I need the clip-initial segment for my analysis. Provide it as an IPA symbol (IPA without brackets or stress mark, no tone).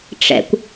ʈ͡ʂ